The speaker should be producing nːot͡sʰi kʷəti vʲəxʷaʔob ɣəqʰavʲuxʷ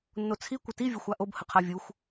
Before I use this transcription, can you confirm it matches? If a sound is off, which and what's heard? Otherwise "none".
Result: ɣ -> h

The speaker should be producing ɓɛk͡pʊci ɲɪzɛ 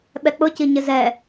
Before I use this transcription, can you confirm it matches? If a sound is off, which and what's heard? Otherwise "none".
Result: none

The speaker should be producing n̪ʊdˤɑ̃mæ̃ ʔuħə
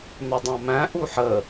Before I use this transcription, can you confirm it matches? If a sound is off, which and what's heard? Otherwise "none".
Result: none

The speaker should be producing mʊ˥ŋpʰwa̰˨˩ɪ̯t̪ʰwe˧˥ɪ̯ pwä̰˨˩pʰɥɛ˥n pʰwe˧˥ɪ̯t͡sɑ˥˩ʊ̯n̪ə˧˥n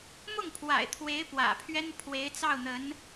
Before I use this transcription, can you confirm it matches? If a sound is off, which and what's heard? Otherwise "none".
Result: ʊ˥ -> ʊ˥˩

